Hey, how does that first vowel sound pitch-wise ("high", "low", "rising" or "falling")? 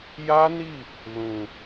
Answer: high